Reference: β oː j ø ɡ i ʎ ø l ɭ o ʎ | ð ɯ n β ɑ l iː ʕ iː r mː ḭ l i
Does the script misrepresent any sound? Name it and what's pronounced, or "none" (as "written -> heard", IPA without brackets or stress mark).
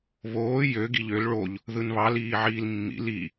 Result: r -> l